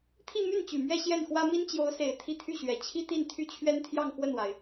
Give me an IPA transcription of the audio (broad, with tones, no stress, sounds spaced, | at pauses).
t̪ʰ i˥˧ m y˥˩ n t͡ɕ y˨˩ m ɥ ɛ˥˧ ɕ j ɛ˥˩ n x w ä˥ m i˥ n t͡ɕ j o˧˥ ʊ̯ s e˨˩ ɪ̯ t̪ʰ i˥˧ t̪ʰ y˥˩ ɕ ɥ ɛ˨˩ t͡ɕʰ i˥ t̪ i˥˧ n t̪ʰ y˥˩ t͡ɕʰ ɥ ɛ˥ n t̪ʰ j ɑ˥˧ ŋ x w ə˥˩ n w a˩ ɪ̯